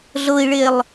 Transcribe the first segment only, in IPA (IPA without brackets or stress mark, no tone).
ɮ